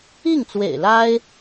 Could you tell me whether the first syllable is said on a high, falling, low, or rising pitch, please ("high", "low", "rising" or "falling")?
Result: falling